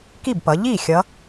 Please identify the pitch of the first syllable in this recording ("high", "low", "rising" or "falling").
falling